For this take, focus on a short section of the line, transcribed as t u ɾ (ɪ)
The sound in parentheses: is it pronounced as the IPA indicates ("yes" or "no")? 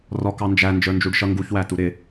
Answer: yes